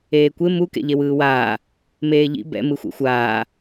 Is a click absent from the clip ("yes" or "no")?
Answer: yes